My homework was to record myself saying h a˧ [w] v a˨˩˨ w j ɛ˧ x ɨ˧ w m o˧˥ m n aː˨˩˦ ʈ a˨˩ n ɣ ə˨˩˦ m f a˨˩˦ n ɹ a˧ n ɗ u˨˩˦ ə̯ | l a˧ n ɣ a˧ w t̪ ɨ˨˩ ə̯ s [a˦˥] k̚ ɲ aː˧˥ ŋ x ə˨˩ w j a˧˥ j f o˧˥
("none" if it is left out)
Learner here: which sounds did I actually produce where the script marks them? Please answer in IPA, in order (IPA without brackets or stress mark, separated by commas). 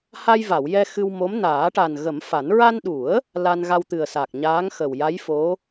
j, a˨˩